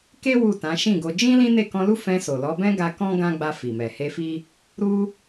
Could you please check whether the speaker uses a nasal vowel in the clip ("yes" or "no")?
yes